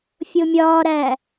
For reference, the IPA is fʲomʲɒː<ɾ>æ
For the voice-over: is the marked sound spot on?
yes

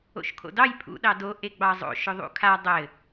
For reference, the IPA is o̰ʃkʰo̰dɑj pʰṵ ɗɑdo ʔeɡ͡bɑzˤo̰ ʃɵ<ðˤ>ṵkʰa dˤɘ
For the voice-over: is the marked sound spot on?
yes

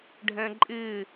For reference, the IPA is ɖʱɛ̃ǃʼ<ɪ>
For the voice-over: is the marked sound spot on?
yes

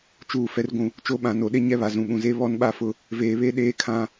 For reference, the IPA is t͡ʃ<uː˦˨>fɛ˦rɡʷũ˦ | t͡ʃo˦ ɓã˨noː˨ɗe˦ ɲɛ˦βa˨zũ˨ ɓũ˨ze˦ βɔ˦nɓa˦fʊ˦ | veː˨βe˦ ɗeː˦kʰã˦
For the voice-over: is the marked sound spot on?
yes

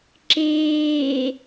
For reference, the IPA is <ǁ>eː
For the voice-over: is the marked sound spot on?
yes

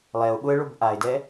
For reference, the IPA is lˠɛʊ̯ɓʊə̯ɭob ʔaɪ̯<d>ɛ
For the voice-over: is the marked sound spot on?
yes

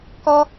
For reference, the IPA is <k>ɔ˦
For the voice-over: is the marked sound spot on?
yes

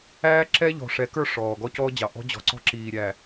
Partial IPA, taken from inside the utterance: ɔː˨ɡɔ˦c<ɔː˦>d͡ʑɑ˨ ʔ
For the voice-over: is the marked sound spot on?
yes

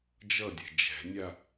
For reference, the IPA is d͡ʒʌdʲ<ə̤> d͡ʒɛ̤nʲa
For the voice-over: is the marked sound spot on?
no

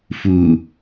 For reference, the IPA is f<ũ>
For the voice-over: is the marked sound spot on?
no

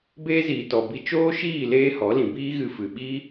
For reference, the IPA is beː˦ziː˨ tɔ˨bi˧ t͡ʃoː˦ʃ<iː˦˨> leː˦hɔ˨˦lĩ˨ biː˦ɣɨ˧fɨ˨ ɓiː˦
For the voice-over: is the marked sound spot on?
yes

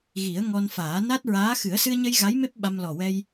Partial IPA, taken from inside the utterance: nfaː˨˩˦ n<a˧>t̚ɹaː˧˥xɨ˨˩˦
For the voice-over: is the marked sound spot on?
no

